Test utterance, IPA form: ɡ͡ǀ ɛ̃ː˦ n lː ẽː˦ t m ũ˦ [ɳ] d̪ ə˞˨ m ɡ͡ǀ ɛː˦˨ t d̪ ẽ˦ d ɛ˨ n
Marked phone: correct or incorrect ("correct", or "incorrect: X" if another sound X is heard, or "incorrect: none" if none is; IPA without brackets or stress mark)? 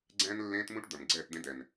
incorrect: ʈ